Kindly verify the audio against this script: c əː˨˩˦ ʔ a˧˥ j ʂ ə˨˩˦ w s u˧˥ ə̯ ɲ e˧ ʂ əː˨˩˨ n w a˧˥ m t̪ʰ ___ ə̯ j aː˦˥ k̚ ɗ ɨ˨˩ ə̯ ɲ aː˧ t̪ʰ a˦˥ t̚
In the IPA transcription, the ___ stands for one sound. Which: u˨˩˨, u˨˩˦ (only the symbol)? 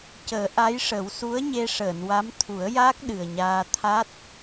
u˨˩˦